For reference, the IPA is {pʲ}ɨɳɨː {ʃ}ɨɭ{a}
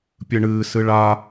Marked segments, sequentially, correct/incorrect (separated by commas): correct, incorrect, correct